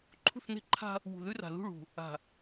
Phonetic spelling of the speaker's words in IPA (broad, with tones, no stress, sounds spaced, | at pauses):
ǃʰ ṳ˦˨ θ n̪ e̤˦ ǃʰ a̤˦ | w ṳ˨ ð ʉ˦ r a̤˨ ð ṳ˦˨ ɭ ṳ˨ | a̤˨